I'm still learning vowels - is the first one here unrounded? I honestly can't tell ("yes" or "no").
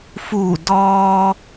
no